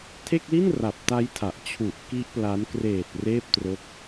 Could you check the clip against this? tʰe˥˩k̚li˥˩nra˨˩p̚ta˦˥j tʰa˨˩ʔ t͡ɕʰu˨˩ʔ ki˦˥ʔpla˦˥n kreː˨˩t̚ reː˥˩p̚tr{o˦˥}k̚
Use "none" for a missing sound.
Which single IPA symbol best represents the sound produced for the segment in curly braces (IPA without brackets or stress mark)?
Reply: o˦˥